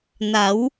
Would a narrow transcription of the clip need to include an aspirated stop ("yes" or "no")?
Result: no